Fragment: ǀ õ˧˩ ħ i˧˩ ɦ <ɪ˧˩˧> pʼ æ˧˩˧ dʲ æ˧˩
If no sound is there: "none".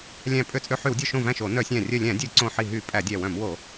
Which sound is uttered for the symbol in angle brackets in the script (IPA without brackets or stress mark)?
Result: y˧˩˧